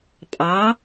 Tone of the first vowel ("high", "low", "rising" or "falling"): rising